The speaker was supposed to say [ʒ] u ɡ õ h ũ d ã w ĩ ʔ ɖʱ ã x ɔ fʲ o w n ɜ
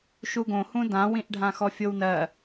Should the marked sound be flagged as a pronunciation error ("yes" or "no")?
yes